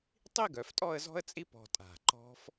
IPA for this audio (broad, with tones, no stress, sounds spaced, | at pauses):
tˤ i˥˧ ɡ œ˩˧ f tʼ ɔ˥˧ ə̯ z ɔ̤˥ ə̯ t͡sʼ i˥ p ɔ̤˧ tʼ a̤˧˩ ǃ ɔ̤˥ f